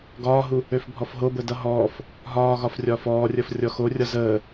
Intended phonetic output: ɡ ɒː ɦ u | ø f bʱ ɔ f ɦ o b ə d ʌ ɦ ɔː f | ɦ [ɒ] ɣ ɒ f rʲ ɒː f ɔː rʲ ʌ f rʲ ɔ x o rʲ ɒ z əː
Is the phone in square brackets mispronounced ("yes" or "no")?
yes